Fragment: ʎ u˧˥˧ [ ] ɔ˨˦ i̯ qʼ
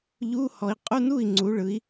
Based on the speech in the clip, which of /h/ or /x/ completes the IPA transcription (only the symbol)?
h